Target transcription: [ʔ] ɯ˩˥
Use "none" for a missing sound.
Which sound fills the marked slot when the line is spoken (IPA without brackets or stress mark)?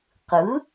q